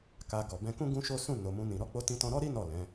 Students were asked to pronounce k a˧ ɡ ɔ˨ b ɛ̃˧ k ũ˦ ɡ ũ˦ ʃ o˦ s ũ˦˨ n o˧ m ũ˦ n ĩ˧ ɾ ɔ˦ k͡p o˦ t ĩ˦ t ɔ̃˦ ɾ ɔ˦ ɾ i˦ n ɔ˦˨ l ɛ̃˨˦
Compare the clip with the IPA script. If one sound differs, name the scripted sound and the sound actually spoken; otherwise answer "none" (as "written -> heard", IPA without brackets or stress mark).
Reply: none